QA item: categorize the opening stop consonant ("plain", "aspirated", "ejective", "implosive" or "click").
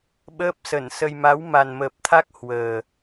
implosive